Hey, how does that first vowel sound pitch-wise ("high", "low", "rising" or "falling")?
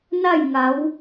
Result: falling